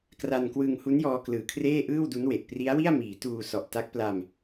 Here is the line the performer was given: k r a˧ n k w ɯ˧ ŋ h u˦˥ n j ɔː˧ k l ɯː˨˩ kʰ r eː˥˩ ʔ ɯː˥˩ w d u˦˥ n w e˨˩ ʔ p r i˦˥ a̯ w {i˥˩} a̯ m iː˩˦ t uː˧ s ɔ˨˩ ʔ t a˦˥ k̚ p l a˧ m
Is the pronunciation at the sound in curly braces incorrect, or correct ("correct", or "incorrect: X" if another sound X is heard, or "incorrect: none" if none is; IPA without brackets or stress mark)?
correct